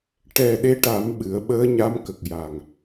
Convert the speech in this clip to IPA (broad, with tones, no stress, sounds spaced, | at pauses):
ʈ ɛ˨˩ ɗ e˧ ʈ a˨˩˦ m ɓ ɨ˨˩˦ ə̯ ɓ əː˧˥ ɲ a˧˥ m k ə˨˩ k̚ j a˨˩ ŋ